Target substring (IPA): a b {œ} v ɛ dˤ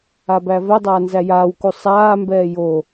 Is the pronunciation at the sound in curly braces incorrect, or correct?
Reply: incorrect